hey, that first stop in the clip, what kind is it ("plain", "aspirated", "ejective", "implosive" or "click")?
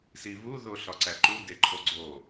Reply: click